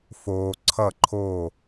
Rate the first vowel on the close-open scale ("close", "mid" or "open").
mid